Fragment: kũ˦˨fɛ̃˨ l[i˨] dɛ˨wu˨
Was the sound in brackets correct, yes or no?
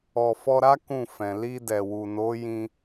no